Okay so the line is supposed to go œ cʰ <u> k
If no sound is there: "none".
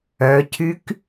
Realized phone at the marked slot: y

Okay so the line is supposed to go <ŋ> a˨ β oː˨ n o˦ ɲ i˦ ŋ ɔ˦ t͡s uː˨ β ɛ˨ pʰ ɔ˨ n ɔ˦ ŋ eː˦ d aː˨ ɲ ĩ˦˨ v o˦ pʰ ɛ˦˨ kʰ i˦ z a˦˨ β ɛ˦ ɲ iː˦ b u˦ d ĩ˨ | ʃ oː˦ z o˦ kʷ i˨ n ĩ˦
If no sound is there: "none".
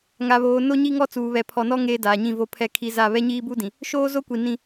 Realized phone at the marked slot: ŋ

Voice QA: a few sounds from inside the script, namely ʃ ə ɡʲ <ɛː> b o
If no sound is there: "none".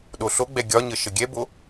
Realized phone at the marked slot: ɛ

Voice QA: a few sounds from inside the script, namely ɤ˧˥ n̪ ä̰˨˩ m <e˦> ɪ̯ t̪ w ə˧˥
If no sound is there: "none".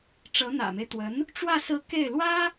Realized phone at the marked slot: e˦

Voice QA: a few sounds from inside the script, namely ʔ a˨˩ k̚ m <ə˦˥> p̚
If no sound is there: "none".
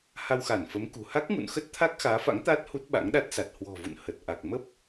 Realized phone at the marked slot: ə˦˥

